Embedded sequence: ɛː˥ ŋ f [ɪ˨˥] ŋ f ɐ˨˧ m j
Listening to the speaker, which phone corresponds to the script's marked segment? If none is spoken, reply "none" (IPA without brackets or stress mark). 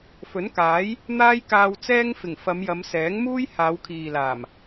ɪ˨˩